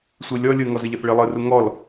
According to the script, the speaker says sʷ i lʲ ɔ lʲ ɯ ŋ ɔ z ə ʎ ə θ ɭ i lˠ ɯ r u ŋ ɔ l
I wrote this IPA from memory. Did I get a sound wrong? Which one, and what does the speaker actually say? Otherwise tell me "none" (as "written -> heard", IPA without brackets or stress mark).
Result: none